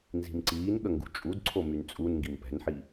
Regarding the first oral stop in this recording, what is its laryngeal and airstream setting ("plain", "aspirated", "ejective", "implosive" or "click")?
click